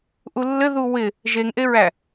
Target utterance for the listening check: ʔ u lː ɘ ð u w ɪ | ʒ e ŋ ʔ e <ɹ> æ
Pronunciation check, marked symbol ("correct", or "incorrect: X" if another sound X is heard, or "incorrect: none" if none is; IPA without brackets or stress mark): correct